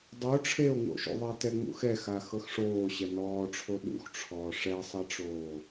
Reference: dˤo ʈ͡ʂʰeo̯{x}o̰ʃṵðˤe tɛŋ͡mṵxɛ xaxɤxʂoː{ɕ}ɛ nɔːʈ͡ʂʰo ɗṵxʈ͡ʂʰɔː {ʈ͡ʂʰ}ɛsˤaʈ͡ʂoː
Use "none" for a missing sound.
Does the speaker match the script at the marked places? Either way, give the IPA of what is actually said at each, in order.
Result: ŋ, ɕ, ʂ

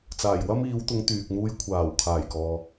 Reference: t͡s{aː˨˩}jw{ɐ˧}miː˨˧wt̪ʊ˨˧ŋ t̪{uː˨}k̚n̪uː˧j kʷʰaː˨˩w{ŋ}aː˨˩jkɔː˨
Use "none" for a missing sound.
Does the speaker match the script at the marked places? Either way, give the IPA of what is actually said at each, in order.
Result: aː˨˩, ɐ˥, yː˨, kʰ

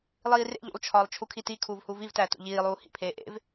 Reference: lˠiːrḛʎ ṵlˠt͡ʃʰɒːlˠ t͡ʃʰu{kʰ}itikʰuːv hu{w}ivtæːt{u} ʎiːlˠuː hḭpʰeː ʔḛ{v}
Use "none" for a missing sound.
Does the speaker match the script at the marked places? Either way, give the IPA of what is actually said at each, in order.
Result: kʰ, v, ṵ, v

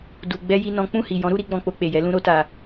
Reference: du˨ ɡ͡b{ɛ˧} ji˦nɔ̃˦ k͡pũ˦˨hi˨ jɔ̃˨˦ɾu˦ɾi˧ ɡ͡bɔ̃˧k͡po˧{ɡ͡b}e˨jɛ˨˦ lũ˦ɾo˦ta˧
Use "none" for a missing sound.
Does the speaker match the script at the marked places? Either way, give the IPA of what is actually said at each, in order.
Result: ɛ˧, k͡p

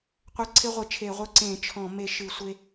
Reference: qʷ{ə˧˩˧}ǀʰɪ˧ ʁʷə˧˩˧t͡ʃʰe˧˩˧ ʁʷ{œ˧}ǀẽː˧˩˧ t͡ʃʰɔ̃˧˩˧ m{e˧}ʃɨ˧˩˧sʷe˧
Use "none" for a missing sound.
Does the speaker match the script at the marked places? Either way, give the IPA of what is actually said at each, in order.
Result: ə˧˩˧, œ˧, e˧

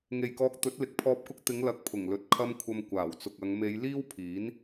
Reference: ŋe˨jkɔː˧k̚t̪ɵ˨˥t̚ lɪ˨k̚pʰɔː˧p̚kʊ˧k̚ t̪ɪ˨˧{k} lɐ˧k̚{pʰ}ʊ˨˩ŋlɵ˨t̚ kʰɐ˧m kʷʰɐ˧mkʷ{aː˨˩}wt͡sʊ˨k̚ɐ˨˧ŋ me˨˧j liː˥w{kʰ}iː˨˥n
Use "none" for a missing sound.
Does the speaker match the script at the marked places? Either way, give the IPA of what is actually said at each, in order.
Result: ŋ, pʰ, aː˨˩, pʰ

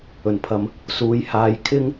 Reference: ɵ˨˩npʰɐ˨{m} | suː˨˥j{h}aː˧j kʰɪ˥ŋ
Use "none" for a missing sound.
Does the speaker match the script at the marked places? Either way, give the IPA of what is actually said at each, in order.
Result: m, h

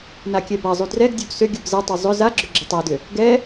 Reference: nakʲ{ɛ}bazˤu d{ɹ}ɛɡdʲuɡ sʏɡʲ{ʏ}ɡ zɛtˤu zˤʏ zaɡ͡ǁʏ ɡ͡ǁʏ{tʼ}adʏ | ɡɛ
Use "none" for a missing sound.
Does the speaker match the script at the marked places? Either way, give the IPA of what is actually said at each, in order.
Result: ɛ, r, u, tˤ

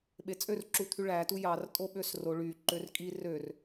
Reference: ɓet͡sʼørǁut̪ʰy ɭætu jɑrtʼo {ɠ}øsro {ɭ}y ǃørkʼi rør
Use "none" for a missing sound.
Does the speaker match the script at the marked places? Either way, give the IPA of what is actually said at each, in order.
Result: ɓ, ɭ

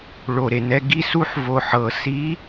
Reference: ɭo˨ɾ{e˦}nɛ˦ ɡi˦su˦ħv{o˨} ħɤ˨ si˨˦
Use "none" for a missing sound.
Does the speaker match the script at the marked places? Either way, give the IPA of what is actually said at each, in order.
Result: e˨, o˨

